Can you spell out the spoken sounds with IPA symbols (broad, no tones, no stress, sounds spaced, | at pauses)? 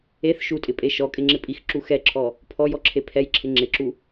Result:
e θ ʃ u tʼ ɪ pʼ e ʃ ɔ kʼ ɪ ŋ͡ǁ ɪ pʼ i x ǁ u x ɛ ǁʰ ɔ | pʰ ɔ j ɔ ǁʰ e pʰ ɛ j ǁʰ ɪ ŋ͡ǁ ɪ ǁ u